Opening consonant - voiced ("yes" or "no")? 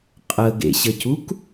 no